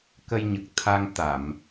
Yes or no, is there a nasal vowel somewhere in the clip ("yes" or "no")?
no